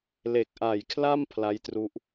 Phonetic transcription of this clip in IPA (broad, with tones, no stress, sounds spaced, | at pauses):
l e˨˩ k̚ ʔ a˨˩ j kʰ l a˥˩ m pʰ l a˦˥ j t r u˦˥ ʔ